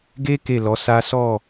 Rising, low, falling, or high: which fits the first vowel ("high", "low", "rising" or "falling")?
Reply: high